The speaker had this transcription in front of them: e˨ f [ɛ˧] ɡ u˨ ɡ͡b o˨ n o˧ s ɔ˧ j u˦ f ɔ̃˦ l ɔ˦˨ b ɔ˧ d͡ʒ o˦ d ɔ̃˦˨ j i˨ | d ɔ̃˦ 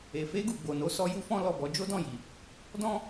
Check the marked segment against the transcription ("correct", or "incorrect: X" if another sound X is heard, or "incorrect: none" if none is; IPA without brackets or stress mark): incorrect: e˧